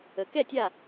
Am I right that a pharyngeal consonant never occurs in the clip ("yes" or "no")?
yes